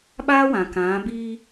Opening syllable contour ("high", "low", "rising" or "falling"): high